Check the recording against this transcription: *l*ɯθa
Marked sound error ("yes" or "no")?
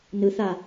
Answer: yes